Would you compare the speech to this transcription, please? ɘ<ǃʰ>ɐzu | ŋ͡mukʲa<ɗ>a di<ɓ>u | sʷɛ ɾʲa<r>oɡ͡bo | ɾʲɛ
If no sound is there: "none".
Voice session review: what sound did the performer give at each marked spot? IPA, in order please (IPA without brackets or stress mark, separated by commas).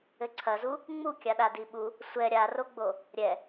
ǀʰ, ɗ, ɓ, r